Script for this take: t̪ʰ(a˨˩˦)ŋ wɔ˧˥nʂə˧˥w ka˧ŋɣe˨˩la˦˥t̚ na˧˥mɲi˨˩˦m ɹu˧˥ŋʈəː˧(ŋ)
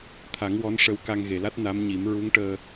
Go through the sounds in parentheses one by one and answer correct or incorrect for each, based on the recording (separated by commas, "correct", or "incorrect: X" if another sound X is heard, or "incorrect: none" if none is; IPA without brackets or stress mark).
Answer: correct, incorrect: none